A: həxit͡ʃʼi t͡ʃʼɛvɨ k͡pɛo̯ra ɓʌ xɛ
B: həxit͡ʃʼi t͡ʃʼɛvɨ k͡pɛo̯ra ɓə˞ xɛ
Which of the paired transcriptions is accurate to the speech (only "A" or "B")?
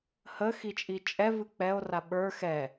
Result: B